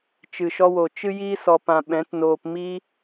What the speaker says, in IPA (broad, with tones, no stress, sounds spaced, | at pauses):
t͡ʃ ɨ˨ ʃ ɔ˧ w o˨ t͡ʃ ɨ˦ j iː˦ s ɔ˧ p ã˧ ɓ ɛ̃˨˦ t n oː˧ p m iː˦